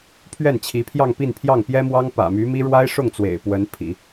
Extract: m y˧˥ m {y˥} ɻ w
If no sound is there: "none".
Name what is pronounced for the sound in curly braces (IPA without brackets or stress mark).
i˥